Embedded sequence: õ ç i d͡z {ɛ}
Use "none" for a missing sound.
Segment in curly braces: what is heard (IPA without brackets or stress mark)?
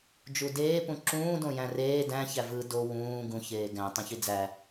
æ